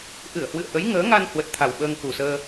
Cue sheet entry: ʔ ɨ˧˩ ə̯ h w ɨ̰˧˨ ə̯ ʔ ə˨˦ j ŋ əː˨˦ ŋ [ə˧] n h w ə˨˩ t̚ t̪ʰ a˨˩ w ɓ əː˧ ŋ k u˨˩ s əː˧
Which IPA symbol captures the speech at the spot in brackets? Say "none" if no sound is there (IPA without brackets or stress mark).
a˧